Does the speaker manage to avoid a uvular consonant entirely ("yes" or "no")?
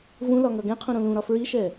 no